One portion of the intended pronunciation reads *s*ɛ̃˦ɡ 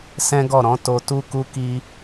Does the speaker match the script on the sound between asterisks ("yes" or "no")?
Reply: yes